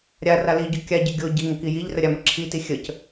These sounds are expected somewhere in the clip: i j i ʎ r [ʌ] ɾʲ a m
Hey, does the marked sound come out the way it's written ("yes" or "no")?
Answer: no